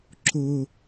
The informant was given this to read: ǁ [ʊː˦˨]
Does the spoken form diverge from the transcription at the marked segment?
yes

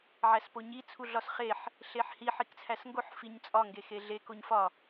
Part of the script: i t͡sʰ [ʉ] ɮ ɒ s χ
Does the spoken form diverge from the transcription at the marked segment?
yes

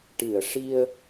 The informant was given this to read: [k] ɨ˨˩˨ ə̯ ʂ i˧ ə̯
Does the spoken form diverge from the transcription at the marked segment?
yes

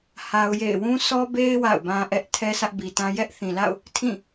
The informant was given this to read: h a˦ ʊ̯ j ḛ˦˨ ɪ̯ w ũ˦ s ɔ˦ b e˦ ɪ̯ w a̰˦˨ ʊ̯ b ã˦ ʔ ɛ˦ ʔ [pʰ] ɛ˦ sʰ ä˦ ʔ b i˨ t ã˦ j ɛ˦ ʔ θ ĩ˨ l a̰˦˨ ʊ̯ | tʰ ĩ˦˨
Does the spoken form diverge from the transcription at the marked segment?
yes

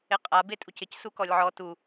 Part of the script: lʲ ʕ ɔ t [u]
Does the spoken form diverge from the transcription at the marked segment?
no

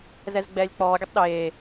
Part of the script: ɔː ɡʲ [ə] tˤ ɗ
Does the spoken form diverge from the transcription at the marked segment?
no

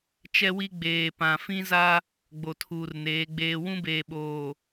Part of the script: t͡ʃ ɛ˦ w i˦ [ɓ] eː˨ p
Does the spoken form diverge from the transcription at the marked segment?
yes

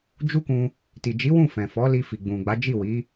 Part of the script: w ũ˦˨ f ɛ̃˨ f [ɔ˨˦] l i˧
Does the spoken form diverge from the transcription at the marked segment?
no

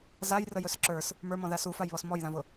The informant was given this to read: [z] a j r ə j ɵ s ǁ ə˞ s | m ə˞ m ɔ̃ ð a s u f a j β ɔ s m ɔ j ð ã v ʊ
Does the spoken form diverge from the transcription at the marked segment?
no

